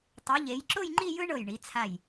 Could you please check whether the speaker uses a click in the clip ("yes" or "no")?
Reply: yes